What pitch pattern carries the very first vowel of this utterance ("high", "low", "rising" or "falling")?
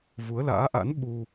rising